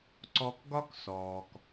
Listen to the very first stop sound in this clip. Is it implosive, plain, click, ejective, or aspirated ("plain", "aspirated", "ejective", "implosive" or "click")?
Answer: click